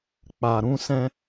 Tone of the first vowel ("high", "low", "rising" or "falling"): low